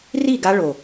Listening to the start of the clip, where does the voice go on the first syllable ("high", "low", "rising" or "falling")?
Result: falling